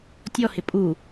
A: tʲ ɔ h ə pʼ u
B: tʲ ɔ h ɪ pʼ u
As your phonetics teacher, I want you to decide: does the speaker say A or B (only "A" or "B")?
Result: B